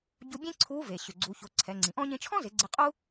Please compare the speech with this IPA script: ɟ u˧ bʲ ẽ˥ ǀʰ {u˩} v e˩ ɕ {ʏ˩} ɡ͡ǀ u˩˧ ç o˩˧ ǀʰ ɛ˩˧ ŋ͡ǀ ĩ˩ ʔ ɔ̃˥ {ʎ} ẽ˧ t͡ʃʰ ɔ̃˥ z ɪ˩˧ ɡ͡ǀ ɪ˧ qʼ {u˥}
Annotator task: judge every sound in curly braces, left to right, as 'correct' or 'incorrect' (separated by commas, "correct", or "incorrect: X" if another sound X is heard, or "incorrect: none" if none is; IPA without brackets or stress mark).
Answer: incorrect: u˧˥, correct, incorrect: ɲ, correct